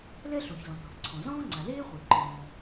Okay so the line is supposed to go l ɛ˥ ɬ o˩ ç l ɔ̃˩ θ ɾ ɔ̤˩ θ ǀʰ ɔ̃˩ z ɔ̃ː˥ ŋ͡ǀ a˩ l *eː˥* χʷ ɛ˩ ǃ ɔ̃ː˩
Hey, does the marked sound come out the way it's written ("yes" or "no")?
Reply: yes